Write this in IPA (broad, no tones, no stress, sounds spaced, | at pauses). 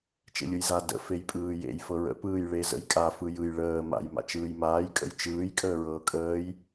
t͡ʃ ḛ lʲ ɯ j z a d ə̰ f e j pʼ ɯː j ḛ j f ɤ ɹ ə̰ p ɯː j ɭ e z ə̰ j kʼ a f ɯ j ɯ j ɭ əː m a̰ j m a̰ t͡ʃ ɯː j m aː j kʼ ə̰ j t͡ʃ ɯː j kʼ əː ɹ ɤː kʼ əː j